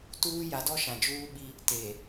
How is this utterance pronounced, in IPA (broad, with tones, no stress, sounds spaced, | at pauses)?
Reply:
t uː˦ j a˨˦ d ɔ˦ ʃ ã˨ d͡ʒ uː˦ ɓ i˦ | t e˨